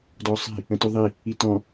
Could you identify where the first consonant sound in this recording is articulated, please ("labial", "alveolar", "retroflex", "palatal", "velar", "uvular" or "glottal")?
alveolar